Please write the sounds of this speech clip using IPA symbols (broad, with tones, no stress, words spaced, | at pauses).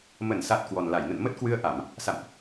mə˧˩nsa˨˩t̚ kwɔ˨˩nla˧˩jnə̰˧˨n mə˦˥t̚kwɨ˧ə̯ʔa˧˩˨m | sa̰˧˨mʔ